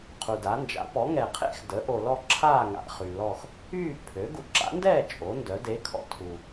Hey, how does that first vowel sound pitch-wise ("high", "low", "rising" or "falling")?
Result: low